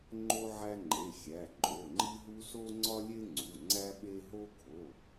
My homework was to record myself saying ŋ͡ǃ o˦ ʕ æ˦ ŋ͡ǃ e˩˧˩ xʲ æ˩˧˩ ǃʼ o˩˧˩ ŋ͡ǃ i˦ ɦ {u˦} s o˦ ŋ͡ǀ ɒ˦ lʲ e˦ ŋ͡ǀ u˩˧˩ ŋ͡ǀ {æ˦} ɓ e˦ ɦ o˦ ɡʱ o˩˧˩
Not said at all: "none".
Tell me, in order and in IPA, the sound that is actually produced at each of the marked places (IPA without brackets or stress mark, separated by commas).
u˦, æ˦